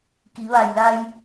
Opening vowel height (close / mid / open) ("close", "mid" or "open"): close